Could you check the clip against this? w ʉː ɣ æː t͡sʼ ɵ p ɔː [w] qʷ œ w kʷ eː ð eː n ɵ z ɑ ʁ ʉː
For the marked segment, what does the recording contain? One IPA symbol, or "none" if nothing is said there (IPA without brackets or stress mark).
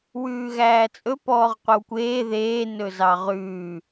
ʁ